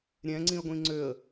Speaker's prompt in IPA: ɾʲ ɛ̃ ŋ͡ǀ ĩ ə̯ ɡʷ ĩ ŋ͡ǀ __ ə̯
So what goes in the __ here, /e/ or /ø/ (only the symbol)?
ø